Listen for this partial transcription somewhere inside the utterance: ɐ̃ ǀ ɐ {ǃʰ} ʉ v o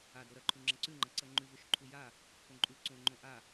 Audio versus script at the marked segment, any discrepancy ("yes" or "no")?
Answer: yes